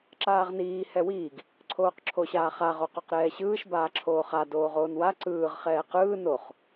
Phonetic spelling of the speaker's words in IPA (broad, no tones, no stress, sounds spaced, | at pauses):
ǁ aː ʁ n iː h ɛ w iː ɡ | ǀʰ oː q ǁʰ o ɕ aː χ a ʁ o q o q ɾ ɛː ɕ ɯː ʃ b aː ǁʰ oː χ a d oː ʁ oː n w a ǀ ɯː ʁ χ ɛː q ɯː n o χ